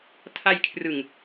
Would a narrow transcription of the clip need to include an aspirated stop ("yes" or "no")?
yes